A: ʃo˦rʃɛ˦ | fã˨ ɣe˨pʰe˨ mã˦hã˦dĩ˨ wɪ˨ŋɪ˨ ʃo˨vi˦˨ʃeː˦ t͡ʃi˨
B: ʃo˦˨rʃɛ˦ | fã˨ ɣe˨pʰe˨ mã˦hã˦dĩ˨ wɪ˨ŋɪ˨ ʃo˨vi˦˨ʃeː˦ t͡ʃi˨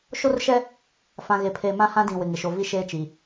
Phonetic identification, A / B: A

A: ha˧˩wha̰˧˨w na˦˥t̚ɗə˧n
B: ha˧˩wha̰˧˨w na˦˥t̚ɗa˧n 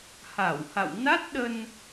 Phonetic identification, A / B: A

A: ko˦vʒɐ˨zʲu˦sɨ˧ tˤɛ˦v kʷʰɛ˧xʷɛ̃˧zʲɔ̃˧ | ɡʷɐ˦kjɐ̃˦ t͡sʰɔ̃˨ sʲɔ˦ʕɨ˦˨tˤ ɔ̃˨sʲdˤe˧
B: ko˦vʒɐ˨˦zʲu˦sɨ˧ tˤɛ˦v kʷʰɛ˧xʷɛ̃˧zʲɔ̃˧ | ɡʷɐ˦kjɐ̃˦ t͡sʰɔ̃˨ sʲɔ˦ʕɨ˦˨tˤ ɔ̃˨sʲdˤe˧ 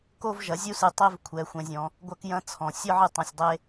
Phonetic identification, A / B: B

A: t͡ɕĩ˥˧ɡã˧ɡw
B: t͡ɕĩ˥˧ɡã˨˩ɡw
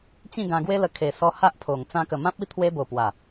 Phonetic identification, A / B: A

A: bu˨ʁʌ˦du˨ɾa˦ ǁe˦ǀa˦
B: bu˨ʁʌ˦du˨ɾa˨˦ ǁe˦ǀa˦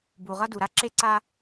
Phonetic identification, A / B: A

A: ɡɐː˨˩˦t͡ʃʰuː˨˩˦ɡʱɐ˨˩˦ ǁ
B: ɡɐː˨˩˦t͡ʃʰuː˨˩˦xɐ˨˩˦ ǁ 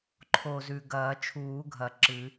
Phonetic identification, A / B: A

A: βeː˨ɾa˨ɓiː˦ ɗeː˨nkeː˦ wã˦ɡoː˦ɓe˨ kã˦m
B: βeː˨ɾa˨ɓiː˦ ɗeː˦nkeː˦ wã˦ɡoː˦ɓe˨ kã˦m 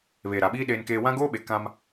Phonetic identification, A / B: B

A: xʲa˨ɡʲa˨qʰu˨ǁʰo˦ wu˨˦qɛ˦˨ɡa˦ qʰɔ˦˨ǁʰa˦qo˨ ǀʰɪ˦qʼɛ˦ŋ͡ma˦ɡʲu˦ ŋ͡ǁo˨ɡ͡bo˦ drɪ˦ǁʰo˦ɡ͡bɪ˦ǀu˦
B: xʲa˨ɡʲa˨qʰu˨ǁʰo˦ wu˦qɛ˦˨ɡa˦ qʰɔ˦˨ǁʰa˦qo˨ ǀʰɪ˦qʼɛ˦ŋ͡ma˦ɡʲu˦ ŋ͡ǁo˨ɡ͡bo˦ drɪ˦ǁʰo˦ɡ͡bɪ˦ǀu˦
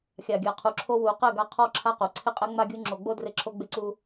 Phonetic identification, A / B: A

